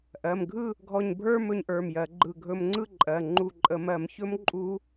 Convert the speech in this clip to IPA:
ʔɜ˩˧˩mɡʱɯ˥˨ | ɡʱɔ˧˩ɲbʱə˞˥˨mɵ˧ɲ ʔə˞˩˧˩mjɜ˧˩˧ ɡ͡ǃɯ˧˩ɡʱɵ˧m ŋ͡ǀɯ˥˨ǃʼɜ˩˧˩ ŋ͡ǃu˧˩ǃʼə˧˩˧mɜ˧˩˧m çɵ˦˥m ǃʼu˦˥

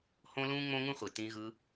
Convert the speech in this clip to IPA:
hõ˦lũː˦ ŋ͡mõ˦ŋũ˦χʷi˨ tĩ˧ɣɯ˧

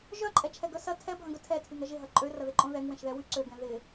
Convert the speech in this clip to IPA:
ʒœǃʼɛ t͡ʃʰɛɡœsɐ tʰɛbʱɐ̃ɡœ tʰɛtʰyŋɐ ʒɪɦɐ ǃʼørɐðɪ ǃʼõðɛŋ wɛ̃ʃðɛwy ǀøɡɛ̃ ðɪ

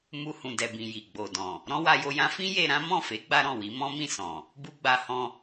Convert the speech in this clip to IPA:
mu˧hũ˨dɛ˨bĩ˨ ji˨ɡ͡bo˨dɔ̃˨ | ɾɔ̃˦wa˧jo˧jã˦ fĩ˦ je˧ɾã˦ mɔ̃˦˨fe˨˦ ɡ͡ba˦ɾɔ̃˦˨wi˨˦ mɔ̃˦mĩ˦˨ sɔ̃˨ | bu˦ɡ͡ba˧hɔ̃˧

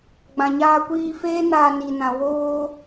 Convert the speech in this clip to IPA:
ɡ͡bã˨ɲaː˧kʷiː˧feː˦ naː˧ni˨nã˨ woː˧

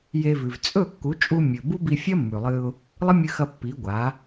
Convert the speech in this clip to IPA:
je˧vʉ˨v t͡sʼɵ˦˨kːu˨˦t͡ʃʼu˧ mʲɵ˨bu˦bi˧ fʲɐ˦mːʉ˨lˠɨ˧ʊ̯ | lˠɨ˦mʲɨ˧xɐ˧ pːi˨˦ɡʷa˨˦

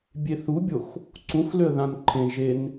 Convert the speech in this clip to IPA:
bʲeθubʲox | ǀũxløə̯ ðãnǃʰẽʒen

